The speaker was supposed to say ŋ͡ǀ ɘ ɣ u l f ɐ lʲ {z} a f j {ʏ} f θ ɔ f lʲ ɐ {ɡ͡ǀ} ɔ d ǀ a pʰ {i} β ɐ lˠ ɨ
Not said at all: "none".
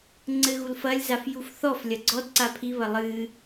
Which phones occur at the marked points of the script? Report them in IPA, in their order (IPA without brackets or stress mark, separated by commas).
z, u, ɡ͡ǀ, i